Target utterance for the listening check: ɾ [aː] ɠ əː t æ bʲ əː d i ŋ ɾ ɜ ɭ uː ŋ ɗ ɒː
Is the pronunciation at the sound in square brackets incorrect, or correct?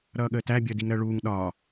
incorrect: ʌː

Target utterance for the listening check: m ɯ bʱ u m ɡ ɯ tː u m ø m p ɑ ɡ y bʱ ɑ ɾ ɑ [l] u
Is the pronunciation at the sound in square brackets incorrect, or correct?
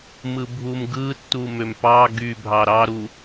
incorrect: ɾ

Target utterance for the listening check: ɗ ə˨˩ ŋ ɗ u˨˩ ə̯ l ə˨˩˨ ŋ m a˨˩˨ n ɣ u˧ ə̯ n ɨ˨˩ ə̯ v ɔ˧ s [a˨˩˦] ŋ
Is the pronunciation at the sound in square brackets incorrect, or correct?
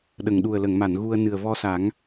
correct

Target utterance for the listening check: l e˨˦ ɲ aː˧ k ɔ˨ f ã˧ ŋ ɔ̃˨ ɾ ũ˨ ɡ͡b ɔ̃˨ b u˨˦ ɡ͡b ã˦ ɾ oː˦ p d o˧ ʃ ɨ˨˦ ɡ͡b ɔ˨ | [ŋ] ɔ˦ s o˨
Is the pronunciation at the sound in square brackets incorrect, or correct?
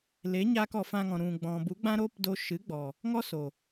correct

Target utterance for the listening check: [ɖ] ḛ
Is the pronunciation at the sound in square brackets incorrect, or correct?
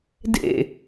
incorrect: d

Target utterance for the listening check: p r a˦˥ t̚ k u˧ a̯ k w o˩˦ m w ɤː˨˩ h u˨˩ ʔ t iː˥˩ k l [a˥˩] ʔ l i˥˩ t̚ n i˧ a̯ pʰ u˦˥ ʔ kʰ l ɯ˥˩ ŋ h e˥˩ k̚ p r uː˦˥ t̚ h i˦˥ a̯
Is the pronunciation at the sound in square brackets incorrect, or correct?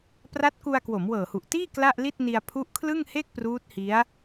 correct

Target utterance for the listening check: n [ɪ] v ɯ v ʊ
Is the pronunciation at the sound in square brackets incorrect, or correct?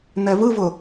incorrect: ɛ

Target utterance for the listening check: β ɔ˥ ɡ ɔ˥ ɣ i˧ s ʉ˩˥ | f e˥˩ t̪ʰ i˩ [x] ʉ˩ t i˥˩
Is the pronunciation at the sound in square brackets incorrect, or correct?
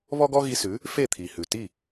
incorrect: h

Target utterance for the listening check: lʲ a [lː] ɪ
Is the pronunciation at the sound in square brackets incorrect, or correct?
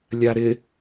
incorrect: ɾ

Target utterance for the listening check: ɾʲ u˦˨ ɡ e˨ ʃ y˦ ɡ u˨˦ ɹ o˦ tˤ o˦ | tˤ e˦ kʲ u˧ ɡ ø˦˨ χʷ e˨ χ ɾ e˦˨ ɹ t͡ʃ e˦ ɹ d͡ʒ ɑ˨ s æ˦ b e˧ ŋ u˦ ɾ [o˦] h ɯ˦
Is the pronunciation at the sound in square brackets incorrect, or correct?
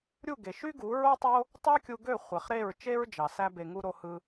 correct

